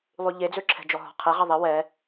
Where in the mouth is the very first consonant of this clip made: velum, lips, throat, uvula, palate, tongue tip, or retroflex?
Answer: tongue tip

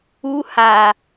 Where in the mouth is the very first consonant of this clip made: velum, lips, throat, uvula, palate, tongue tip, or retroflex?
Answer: throat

